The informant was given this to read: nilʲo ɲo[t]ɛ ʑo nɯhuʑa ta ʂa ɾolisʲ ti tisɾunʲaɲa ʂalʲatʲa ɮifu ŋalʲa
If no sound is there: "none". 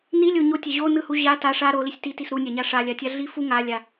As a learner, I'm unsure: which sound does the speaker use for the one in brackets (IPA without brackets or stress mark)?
tʲ